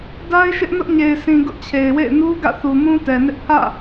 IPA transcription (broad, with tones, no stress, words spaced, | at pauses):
da˦ɪ̯ʃɪ˦ʔ nʊ˦ʔ ɲe˨ɪ̯sĩ˨ ɡʊ˦ʔt͡ɕʰe˨ɪ̯wḛ˦˨ɪ̯ nu˦ ɡä̰˦˨θu˨mũ˦ tɛ˨nɪ˦ʔ pʰä̰˦˨